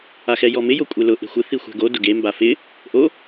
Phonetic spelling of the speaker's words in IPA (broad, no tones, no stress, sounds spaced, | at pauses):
a x ɛ j ɔ m ɪ j o kʷʼ e l ʊ ʔ e̤ xʷ ɪ θ i xʷ ɛ̤ ɡ o d ʊ ɡ e m b a f ɪ | ʔ o